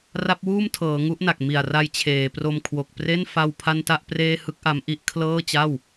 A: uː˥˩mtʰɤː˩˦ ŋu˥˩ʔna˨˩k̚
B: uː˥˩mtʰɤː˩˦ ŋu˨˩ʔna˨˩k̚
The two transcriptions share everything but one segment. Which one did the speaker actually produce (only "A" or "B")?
A